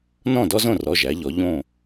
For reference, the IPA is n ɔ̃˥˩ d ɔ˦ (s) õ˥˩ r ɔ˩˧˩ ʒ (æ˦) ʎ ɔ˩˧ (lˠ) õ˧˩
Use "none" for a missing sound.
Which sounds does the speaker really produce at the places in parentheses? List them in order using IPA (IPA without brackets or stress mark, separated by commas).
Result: z, æ˩˧, ʎ